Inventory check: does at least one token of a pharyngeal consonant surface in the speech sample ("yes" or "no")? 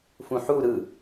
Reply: yes